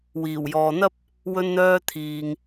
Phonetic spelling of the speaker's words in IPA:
w iː˨˩ w j ɔː˨ n̪ ɐ˥ p̚ | w ɵ˧ n n̪ œː˧ t̪ʰ iː˨ ŋ

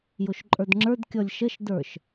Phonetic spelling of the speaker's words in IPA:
j o ʃ ǃʼ ə˞ d ŋ͡ǁ ə˞ d kʲ ɔ lʲ ʃ ə ʃ d ə˞ ʃ

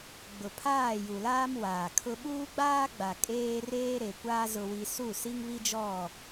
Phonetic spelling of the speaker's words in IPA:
ɡ͡b ʊ˨ pʰ aː˦˨ j u˨ l aː˦ m w aː˨ kʰ ʊ˦ ɓ uː˦ ɡ͡b aː˦ ɡ͡b a˨ kʼ eː˦ r eː˦ ɾ e˨ kʷ aː˦ z ʊ˦ w i˦ s u˦˨ s i˦ ŋ β i˦ d͡ʒ ɔ˦˨

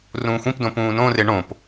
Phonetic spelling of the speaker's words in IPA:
r ũː xʷ ĩ p d õ p ũː n õ r e ɳ õ p

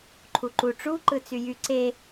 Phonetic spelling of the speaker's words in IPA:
ǃʰ u ǃ u ʈ͡ʂ u ǃ ɯ t͡s y j y ǀ e

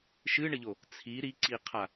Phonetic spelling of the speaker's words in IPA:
ʃ ɨ ɳ ɘ ʎ o | t͡sʰ i ɾ i ǀ i qʰ a

